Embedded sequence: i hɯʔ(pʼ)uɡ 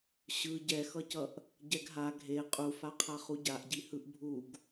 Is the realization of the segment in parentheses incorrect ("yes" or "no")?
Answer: yes